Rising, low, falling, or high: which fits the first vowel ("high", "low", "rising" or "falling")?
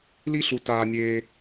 high